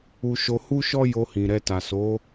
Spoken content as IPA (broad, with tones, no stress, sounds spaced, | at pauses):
u˧ ʃ o˧ h u˦ ʃ ɔ˦ j o˧ h ĩ˨ ɾ ɛ˧ t a˨ s o˨˦